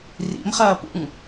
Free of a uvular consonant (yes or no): no